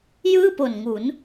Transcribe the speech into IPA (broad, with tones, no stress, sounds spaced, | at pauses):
j ɯː˥˩ p o˨˩ n ŋ u˩˦ n